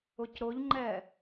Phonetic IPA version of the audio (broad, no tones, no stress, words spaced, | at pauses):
ʊcɾʊʎŋ͡ǃɛ